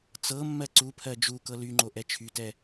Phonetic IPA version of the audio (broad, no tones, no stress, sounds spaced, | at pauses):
t͡s ɤ mː ɜ ǀ u pʰ ɜ d͡ʒ u k ɤ l y ŋ͡ǃ o ʔ ɛ t͡ʃʰ y t ɛ